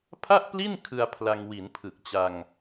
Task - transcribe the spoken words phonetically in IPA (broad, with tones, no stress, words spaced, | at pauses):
pʰa˥˩ʔpli˥˩n kʰɯ˧a̯ pʰla˧ŋ wi˩˦npʰɯ˨˩k̚t͡ɕa˧ŋ